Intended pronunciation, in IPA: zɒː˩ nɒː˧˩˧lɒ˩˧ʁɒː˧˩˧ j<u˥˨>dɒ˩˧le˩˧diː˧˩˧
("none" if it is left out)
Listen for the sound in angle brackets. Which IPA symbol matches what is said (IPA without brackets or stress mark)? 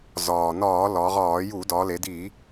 u˧˩˧